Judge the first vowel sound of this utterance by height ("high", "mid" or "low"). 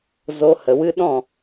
mid